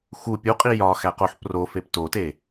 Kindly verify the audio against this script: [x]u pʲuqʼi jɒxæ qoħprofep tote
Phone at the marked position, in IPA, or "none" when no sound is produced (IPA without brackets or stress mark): x